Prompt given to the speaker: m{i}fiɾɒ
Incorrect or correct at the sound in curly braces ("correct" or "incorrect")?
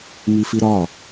correct